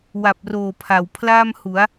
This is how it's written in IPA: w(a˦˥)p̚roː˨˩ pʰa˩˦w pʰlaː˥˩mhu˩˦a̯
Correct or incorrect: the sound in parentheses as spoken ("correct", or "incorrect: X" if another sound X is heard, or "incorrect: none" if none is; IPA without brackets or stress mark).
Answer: incorrect: a˨˩